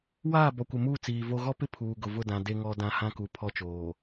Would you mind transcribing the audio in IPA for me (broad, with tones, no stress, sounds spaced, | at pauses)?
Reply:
w aː˦˨ b ɔ˨ kʷ ɪ˨ m uː˦˨ t͡s iː˨ v o˦ ɣ ɔ˦ p ɪ˦ pʰ uː˨ ɡ ʊ˨ v ʊ˦˨ d ã˨ d e˦ ŋ ɔ˦ d ã˦ h ã˦ k u˨ pʰ ɔ˦ t͡ʃ oː˨